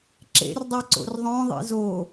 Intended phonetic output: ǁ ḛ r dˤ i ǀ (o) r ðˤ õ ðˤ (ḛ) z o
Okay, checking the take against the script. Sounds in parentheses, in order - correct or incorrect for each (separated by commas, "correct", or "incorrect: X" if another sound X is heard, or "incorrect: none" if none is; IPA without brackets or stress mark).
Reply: incorrect: o̰, incorrect: ḭ